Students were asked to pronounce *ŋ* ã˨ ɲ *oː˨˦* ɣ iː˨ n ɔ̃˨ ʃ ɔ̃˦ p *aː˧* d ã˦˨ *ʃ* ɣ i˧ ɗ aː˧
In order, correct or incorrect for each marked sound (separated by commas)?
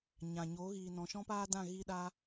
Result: incorrect, incorrect, incorrect, incorrect